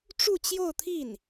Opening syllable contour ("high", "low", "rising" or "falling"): falling